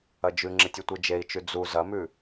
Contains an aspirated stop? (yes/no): no